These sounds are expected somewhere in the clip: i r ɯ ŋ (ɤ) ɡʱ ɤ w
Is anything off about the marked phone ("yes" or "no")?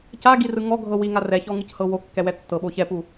yes